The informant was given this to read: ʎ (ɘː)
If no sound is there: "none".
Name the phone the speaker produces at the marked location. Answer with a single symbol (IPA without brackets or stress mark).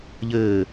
ɘː